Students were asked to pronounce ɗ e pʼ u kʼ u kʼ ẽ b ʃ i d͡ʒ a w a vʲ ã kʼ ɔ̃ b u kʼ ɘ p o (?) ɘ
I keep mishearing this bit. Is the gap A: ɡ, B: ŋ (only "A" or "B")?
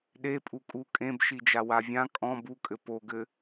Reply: A